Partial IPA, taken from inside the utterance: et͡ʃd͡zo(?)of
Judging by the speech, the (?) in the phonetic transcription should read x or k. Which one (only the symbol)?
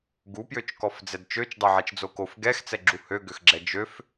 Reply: k